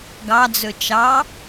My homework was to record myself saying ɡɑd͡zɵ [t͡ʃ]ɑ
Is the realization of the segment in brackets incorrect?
no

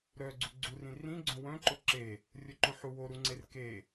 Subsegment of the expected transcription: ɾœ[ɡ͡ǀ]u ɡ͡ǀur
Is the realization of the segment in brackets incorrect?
no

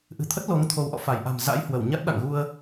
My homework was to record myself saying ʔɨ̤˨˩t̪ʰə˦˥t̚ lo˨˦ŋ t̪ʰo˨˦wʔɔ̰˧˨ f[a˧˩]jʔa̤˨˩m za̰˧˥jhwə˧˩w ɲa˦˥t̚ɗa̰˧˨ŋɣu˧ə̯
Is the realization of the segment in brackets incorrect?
no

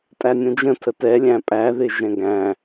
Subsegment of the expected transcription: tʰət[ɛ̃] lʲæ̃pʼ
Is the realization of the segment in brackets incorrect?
yes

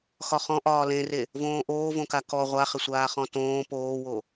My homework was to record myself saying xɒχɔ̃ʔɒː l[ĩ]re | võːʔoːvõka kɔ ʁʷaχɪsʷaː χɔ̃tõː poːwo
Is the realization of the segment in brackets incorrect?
yes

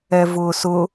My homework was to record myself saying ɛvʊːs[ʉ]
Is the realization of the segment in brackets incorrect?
yes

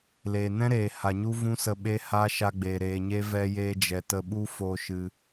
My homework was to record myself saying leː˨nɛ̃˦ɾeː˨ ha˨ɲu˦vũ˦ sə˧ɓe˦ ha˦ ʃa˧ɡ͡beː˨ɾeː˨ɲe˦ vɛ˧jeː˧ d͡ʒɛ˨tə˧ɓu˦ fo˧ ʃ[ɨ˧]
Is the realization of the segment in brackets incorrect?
no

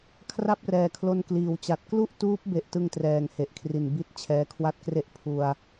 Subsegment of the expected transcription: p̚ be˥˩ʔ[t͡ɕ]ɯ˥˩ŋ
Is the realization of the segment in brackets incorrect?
yes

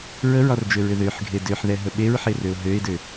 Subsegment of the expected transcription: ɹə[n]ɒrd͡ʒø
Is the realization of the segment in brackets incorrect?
yes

